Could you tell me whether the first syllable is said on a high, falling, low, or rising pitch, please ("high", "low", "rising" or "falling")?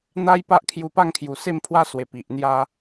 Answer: high